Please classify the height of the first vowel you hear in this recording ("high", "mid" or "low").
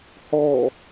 mid